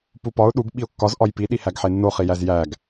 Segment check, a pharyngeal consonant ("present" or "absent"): present